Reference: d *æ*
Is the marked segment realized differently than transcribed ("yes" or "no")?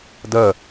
yes